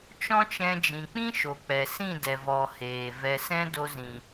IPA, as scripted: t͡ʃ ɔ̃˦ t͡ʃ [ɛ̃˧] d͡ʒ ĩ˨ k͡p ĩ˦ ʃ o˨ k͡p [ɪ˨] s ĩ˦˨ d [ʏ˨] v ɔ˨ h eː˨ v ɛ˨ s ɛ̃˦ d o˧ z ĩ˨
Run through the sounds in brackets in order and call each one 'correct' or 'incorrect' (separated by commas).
correct, incorrect, incorrect